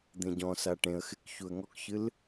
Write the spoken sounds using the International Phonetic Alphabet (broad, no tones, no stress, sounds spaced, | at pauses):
d̪ ẽ ɟ ɔ̃ s a ʈ ẽ ə̯ x ɪ k ç u ə̯ ŋ ɔ k ç ɨ l